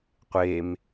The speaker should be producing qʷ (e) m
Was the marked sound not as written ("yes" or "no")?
no